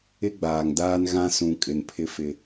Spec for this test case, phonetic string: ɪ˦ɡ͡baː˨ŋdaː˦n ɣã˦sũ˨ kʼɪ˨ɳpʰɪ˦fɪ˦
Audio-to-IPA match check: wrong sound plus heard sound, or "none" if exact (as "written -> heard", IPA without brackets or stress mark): ɳ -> n